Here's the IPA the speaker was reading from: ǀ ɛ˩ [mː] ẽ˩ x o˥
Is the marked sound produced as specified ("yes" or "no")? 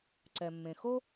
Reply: yes